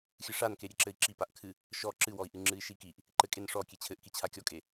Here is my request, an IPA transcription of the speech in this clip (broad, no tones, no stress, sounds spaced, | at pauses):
xʲ ɨ ʂ a n k e ɾʲ e ǁ ɘ i̯ ǁ i p a ʔ kʰ ɨ | ʃ ɔ ǁ ɨ w ɔ i̯ ʔ ɨ ŋ͡ǁ ɨ i̯ ʃ i k i ʔ | ǃ ɘ kʼ e n ʂ ɔ kʲ e t͡ɕʰ ɘ ʔ k i t͡ɕʰ a kʲ ɔ kʼ e